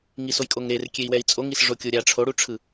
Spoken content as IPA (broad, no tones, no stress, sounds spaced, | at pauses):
ŋ i s o j kʼ o ŋ ɾ e r kʲ e i̯ w ɛ i̯ t͡sʼ o ŋ i s ʐ o kʲ o ɾʲ a ʈ͡ʂʰ o ɽ u ʈ͡ʂʰ ɯ